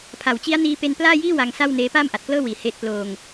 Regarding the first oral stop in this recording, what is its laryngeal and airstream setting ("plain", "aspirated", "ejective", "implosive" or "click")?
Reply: aspirated